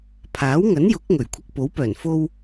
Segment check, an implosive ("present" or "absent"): absent